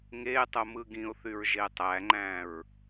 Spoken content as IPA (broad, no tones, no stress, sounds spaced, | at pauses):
ŋ e tˤ o m ɯ ɡ ĩ ʊ̯ θ y ɹ ʒ e tˤ æ ŋ͡ǃ æ̃ ɹ